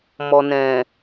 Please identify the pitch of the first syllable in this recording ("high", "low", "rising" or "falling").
low